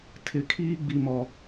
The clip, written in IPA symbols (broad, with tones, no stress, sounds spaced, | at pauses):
tʰ ɪ˨ kʰ iː˦ ɡ͡b i˨ m ɔ˨